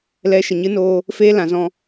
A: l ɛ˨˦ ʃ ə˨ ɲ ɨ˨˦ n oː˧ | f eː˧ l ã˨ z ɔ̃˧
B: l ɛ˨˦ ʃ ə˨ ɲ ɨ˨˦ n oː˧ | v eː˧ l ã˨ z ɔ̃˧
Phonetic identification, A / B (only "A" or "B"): A